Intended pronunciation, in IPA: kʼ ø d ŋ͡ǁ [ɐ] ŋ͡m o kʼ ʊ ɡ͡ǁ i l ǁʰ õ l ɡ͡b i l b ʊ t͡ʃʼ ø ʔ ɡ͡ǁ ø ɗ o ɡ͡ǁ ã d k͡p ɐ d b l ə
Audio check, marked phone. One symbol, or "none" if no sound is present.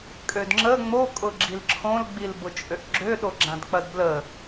ə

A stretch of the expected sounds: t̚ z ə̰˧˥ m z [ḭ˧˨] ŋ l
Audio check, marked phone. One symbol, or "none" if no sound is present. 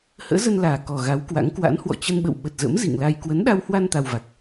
ḭ˧˨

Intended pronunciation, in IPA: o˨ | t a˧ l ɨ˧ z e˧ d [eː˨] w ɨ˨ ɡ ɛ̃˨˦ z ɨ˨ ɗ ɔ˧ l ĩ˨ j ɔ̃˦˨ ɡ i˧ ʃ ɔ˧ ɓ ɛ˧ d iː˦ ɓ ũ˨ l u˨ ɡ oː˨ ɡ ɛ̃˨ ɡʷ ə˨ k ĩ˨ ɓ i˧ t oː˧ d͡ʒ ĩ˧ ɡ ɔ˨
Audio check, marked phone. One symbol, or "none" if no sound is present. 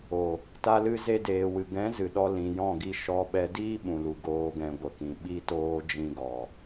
eː˨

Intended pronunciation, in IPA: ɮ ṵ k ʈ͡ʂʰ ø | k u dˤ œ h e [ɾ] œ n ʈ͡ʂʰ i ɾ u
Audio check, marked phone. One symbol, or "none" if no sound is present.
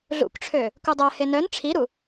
n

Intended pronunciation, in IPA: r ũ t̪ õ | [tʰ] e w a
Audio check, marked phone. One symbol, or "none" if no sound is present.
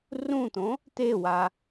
t̪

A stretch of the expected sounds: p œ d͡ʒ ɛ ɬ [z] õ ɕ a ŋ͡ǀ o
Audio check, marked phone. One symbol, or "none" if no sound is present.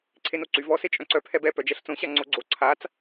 t͡s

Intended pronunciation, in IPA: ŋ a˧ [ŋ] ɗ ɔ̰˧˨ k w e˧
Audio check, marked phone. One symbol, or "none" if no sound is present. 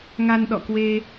n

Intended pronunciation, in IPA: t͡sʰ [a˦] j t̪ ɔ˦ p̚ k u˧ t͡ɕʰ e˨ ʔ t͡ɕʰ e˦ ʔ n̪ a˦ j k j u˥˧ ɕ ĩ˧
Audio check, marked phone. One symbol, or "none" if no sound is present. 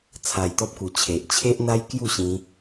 a˧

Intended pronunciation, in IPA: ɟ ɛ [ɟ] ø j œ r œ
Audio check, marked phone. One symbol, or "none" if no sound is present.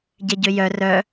ɟ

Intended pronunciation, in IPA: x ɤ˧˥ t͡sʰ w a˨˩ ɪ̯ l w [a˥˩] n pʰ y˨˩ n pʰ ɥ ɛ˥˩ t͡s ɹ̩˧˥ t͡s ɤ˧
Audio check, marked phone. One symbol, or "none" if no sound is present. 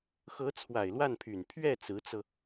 a˥˩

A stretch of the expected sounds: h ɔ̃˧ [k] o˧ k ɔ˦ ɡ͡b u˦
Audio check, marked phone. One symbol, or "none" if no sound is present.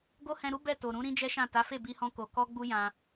k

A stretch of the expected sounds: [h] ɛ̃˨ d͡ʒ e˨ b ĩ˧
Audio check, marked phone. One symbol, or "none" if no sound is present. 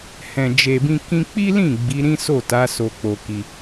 h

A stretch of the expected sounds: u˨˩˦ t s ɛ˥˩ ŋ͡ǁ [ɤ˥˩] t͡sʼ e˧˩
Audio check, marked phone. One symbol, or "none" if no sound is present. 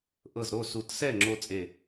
o˥˩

